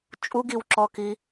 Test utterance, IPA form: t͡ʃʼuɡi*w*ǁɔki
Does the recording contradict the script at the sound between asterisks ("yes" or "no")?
no